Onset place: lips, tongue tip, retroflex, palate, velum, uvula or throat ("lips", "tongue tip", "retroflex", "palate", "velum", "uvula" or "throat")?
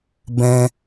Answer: lips